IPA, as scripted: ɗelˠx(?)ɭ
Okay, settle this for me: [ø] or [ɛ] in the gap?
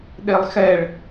ɛ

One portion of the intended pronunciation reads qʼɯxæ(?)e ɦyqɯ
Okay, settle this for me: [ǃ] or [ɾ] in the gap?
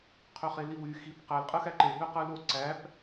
ǃ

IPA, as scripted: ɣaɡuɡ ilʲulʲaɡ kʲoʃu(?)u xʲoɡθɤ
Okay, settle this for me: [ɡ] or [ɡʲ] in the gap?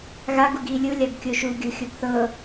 ɡʲ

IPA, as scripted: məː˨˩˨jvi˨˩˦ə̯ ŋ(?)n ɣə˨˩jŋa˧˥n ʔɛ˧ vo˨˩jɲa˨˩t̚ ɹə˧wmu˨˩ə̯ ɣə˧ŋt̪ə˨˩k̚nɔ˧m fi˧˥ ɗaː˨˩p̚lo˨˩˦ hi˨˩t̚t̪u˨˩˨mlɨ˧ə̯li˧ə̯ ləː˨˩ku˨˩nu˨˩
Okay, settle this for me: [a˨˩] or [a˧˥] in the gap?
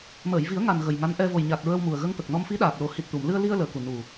a˨˩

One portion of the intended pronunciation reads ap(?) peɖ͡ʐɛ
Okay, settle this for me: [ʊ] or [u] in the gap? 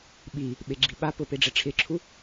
ʊ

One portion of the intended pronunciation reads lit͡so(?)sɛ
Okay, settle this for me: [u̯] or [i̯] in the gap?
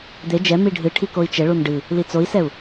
i̯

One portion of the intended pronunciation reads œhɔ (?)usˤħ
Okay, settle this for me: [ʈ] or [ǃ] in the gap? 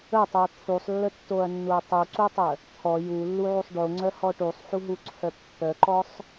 ʈ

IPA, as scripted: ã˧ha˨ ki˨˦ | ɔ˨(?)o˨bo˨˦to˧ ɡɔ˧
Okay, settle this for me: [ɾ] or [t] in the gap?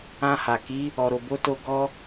ɾ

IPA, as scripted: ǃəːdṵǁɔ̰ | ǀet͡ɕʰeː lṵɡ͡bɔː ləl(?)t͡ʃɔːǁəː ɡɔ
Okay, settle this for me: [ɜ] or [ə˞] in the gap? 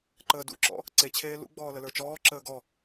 ə˞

